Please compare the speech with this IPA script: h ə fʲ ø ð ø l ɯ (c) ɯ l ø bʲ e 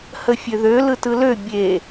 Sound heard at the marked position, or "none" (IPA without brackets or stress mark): t